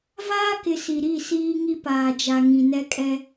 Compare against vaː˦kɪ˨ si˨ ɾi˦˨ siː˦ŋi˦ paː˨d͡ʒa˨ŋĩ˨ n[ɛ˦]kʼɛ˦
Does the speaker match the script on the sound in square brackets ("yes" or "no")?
yes